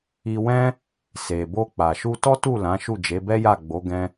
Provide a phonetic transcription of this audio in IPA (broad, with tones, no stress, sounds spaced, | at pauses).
i˧ w ɛ̃˦ | s e˨ b o˧ k͡p a˨ ʃ u˧ t ɔ˦ t u˦˨ l ã˨˦ ʃ u˦˨ d͡ʒ e˨˦ b ɛ˦ j a˦˨ ɡ͡b o˨˦ ɡ ɛ̃˦